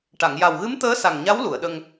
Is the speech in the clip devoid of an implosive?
no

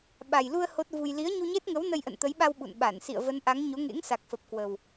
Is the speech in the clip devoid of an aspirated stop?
yes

